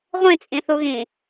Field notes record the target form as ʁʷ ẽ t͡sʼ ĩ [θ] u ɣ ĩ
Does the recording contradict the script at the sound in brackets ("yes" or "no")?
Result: no